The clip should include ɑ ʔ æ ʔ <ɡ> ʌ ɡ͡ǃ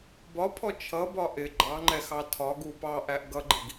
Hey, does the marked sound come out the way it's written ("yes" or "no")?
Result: yes